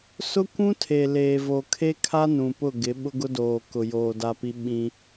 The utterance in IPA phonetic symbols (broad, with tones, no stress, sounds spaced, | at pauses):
s ʊ˦ kʷ ũ˦ tʰ e˨ l eː˨ v o˨ kʰ e˦ kʰ a˦ n ũ˨ p ʊ˦˨ ɡ ɪ˨˦ ɓ ʊ˦ ɡ ʊ˦ d oː˨ k ʊ˨ j oː˨ d a˦ p i˦ ɓ ĩ˦